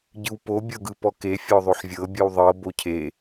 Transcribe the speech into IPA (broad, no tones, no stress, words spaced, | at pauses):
ɟɯwpo bʲɤɡɯpɔke fʲɔðˤoħvʲɤ bʲɯwðˤɤ bocʰe